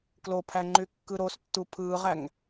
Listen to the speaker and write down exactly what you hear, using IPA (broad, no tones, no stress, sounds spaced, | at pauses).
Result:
k l o pʰ æ ŋ͡ǃ y kː ɯ ɾ o s tː u pʰ ɯː ʁ æ ŋ